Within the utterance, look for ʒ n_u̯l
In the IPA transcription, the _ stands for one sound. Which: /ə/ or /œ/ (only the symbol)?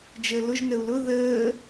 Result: ə